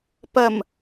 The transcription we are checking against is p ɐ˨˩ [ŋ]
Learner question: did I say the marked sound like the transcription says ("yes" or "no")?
no